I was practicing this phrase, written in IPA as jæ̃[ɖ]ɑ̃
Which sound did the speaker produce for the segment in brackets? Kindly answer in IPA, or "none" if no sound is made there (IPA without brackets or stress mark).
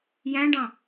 ɖ